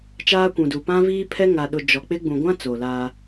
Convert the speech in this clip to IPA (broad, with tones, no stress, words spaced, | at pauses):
t͡ʃaː˦kʷũ˨du˨ pã˦viː˦pʰɛ˦ ŋa˨ɗʊ˨ d͡ʒɔ˨k͡pɪ˦ ɡ͡bũ˨ɡʷã˦ t͡so˨laː˦